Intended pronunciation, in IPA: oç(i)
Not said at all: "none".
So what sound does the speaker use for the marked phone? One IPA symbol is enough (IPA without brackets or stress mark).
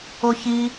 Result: i